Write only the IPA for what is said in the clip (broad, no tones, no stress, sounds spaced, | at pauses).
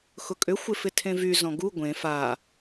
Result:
x ʊ kʼ ʏ xʷ ɪ f ɪ tʰ ẽ v y z ɔ̃ ɡ u ɡʷ ẽ f a